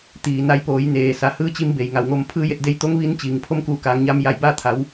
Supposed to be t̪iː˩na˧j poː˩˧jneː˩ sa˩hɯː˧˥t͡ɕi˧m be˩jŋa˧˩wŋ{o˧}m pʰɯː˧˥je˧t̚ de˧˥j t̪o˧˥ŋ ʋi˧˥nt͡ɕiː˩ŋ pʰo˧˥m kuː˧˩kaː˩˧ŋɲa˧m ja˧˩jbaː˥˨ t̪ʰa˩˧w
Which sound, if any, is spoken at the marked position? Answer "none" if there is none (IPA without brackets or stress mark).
o˧